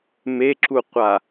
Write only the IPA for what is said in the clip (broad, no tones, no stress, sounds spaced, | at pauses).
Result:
m e ǁ u qʷ a